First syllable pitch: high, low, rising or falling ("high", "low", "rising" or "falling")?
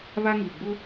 high